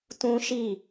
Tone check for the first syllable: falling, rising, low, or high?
high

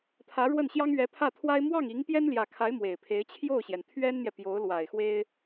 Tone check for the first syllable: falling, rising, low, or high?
rising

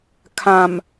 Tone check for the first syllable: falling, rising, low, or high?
low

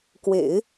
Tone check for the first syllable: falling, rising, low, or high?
low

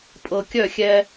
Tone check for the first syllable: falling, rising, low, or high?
low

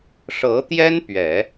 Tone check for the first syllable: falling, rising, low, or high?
rising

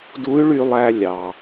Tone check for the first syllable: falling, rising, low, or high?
rising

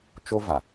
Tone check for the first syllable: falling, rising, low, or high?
high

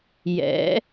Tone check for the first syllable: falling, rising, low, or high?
rising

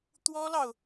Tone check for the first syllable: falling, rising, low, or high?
high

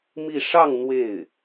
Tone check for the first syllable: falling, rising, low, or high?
falling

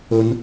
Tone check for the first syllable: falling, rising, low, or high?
low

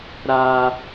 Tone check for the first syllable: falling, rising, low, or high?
high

